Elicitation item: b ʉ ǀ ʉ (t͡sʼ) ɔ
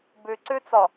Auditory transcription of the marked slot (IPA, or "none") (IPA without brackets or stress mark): t͡s